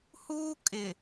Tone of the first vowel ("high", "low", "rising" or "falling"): high